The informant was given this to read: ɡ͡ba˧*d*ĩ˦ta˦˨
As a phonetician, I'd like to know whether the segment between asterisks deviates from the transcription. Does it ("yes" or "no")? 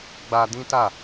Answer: no